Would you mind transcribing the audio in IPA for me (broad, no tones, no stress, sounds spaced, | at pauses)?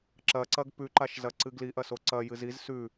ǁ ɐ ǀ ɐ ɡ p ʉ ǃ a ʃ z ɐ ǀ ɨ ɡ l i ʔ ɐ s o ǀ ɐ j ɨ z i z s ʉ